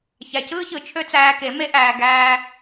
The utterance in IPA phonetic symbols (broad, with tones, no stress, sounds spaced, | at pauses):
ç æ˨ c ɯː˦ ç ɯ˨ t͡ʃʰ ø˦ t͡s æː˧ k e˨˦ m e˦ ʔ æː˧ ɡ æː˦